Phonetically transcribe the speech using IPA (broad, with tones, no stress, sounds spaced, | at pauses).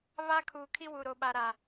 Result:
β aː˦ kʰ uː˨ kʰ i˦ w u˨ ɾ o˨ ɓ a˨ ɾ a˨